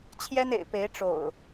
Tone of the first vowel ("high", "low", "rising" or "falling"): high